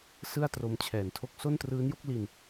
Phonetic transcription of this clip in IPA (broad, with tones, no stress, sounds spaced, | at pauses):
s ɯ˥˩ a̯ t r o˧ m t͡ɕʰ ɛː˨˩ n tʰ o˥˩ k̚ s o˥˩ n t r ɯː˦˥ n j o˦˥ k̚ l i˧ n